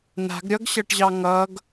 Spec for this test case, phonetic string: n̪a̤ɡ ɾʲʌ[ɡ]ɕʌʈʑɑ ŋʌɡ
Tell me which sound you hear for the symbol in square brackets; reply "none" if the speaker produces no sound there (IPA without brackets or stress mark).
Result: ɡ